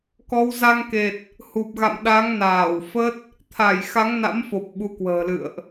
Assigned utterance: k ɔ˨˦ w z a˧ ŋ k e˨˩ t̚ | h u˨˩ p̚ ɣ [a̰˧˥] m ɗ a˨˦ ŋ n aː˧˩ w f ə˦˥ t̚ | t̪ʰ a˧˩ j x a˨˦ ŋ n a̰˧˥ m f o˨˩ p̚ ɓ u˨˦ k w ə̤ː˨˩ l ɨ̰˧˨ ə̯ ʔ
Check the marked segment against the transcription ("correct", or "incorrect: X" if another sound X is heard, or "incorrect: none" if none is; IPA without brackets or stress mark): incorrect: a̰˧˨